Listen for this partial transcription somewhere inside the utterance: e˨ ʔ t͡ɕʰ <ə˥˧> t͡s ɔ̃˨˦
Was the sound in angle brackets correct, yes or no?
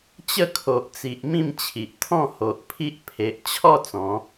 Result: no